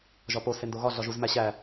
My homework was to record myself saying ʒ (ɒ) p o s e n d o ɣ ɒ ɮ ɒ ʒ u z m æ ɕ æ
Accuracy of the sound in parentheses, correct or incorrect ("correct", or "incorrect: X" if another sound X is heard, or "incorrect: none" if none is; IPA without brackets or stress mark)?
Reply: correct